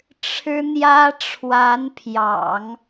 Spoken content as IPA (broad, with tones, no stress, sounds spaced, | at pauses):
ʈ͡ʂʰ ɻ̩˥ n̪ j ä˥ ʈ͡ʂʰ w a˧˥ n pʰ j ɑ̰˨˩˦ ŋ